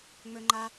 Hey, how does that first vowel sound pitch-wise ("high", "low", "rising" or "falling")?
high